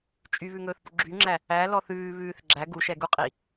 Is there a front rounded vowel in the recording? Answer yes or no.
yes